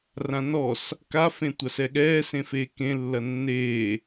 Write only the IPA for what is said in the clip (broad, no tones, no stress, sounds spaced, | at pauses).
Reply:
r ã n ɔ s | k a f ẽ tʷ a s ɛ ɠ ɛː s ẽ f eː k ẽ lː ɐ nː eː